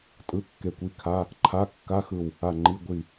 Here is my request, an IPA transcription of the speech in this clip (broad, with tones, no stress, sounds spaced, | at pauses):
tʼ ɯ˧˥˧ kː e˧˩ kʷ i˧˥˧ kʰ a˧˥˧ | ǃʰ a˧˥˧ kː a˧˥˧ x ɯ˧˩ w | a˧˩ ŋ͡ǃ i˧˥˧ ɡʷ i˧˩